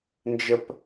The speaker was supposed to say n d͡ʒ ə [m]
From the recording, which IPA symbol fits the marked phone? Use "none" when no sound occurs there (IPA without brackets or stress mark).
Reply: p